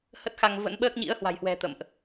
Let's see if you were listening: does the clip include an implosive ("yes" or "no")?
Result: yes